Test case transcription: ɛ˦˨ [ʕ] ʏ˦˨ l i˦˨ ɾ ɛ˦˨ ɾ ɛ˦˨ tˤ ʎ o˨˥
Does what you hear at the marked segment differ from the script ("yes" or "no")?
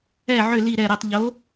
no